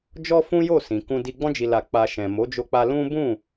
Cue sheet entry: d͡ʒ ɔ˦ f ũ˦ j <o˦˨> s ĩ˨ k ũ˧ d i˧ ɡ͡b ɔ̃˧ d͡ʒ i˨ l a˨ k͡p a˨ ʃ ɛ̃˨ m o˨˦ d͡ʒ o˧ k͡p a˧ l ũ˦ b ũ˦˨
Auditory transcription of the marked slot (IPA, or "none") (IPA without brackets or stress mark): o˦˨